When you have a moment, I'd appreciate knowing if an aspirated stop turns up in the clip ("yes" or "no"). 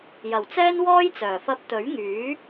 no